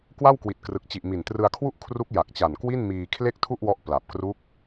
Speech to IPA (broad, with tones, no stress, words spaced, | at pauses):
kwa˥˩wkwi˨˩t̚krɯ˨˩k̚t͡ɕi˨˩ʔ mi˨˩ntrɯ˧a̯kʰwu˥˩ʔ kʰru˦˥k̚ ja˨˩k̚t͡ɕa˨˩nkwi˥˩n miː˧kʰle˥˩k̚tʰu˥˩ʔwɔ˦˥ʔ pla˨˩p̚kru˦˥k̚